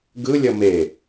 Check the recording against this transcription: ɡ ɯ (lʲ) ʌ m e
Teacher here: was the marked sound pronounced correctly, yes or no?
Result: yes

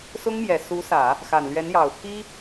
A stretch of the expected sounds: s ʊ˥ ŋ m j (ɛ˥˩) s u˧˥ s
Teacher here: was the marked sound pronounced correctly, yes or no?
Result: no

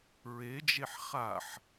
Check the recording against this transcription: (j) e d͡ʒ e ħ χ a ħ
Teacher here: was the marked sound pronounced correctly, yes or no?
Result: no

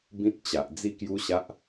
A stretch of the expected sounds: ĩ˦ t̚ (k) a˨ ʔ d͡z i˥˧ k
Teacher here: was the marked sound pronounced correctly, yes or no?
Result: no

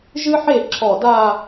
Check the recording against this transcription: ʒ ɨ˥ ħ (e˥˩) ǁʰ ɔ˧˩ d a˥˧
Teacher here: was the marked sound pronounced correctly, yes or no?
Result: yes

